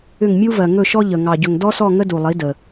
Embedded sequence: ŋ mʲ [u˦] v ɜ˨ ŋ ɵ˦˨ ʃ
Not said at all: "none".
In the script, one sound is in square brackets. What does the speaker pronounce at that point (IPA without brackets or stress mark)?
u˦